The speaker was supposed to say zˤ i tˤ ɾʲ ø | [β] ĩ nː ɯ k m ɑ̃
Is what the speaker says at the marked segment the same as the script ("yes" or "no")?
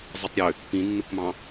no